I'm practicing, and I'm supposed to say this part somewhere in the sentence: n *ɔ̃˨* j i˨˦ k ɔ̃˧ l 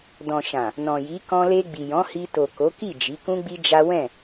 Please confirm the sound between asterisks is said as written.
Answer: yes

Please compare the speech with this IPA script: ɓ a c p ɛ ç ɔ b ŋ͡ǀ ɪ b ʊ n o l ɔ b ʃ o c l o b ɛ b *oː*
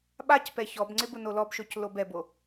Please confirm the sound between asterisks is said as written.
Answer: no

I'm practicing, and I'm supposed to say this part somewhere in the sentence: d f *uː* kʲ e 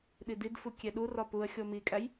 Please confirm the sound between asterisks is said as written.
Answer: no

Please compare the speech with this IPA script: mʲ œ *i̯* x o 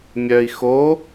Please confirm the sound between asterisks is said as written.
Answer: yes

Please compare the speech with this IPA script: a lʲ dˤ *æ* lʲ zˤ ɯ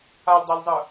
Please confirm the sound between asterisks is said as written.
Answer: yes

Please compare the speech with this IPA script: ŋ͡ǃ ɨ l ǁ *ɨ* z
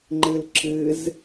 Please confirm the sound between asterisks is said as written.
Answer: yes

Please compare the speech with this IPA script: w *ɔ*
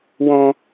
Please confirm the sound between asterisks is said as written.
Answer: no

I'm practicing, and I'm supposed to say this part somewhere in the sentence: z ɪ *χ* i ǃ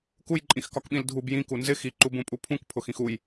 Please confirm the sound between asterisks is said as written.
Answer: no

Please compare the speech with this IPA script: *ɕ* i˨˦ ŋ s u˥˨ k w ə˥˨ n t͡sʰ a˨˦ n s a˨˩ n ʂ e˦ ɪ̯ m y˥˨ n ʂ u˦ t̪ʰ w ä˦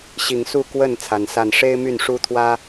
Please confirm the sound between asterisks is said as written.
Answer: yes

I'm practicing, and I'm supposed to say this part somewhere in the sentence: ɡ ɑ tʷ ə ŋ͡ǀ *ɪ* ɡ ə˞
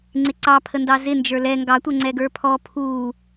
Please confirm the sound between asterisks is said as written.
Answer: no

